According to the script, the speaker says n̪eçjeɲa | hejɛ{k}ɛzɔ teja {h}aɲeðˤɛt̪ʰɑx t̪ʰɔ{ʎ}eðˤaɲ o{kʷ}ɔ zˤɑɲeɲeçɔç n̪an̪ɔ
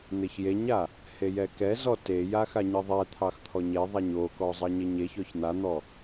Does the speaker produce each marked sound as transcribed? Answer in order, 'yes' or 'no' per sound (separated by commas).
yes, no, no, no